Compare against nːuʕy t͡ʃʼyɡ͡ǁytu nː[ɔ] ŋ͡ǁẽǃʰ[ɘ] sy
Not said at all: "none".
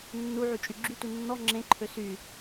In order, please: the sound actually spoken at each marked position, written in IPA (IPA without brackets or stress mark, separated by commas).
ɔ, ø